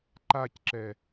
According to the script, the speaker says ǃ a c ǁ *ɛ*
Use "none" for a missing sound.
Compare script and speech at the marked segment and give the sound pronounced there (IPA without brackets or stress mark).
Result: ɛ